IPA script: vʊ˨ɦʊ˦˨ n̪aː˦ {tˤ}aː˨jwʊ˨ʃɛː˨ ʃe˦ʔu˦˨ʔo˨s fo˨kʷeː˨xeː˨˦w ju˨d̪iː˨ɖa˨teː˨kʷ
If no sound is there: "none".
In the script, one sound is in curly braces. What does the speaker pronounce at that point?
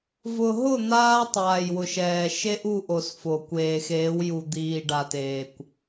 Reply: tˤ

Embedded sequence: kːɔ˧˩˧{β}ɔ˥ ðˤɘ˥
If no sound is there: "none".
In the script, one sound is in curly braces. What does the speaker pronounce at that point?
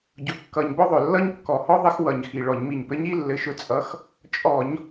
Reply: h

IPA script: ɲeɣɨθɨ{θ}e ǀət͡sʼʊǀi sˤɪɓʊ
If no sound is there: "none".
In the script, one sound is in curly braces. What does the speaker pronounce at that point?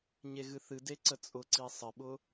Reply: d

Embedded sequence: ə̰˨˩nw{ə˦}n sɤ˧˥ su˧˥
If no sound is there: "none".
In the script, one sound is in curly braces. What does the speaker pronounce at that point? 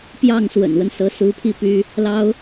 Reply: ə˦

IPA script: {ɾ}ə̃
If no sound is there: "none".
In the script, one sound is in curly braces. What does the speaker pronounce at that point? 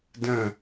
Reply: d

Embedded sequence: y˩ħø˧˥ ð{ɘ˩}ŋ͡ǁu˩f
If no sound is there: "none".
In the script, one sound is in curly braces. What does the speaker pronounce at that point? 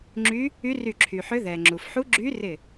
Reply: ɛ˩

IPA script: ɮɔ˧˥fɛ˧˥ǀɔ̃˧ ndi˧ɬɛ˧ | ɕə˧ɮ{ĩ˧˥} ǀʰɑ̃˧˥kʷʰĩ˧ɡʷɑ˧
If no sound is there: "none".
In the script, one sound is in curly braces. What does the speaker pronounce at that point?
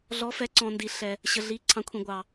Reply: i˧˥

